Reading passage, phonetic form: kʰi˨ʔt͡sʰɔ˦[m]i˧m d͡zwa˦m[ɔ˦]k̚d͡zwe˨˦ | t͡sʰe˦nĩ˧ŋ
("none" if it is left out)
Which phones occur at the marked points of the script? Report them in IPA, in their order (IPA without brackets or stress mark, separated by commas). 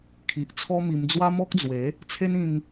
m, ɔ˦